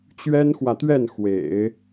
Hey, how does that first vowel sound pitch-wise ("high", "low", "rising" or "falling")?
high